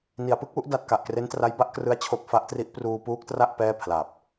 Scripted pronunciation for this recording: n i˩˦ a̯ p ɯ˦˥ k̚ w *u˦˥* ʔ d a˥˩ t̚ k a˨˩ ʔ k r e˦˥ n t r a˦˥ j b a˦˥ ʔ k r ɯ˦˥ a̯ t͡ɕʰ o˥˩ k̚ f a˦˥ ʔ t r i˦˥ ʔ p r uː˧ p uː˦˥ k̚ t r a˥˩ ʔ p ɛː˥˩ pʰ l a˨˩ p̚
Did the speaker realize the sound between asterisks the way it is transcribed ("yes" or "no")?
yes